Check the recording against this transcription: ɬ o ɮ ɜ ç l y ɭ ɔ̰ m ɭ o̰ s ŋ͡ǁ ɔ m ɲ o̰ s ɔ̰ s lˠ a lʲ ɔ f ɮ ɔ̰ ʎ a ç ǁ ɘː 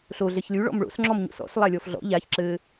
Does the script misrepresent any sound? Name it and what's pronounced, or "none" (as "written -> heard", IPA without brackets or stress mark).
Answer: none